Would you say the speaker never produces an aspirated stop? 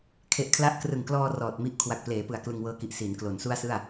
no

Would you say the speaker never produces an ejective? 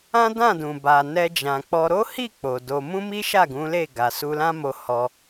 yes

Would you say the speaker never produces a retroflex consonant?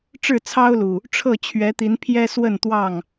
no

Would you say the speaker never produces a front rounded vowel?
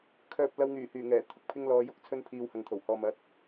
no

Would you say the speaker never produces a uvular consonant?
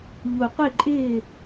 no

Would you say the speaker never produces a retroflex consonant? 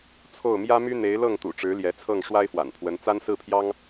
no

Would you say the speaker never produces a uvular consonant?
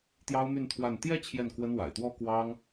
yes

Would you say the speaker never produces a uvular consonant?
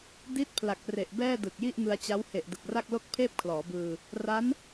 yes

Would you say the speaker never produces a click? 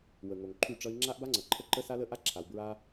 no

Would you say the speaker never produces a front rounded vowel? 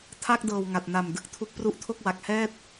yes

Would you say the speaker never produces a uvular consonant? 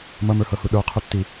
no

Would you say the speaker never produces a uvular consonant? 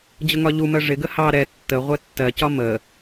no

